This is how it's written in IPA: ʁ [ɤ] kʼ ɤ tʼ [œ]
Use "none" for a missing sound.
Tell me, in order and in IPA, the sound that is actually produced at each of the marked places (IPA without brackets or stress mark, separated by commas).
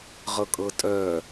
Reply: ɤ, œ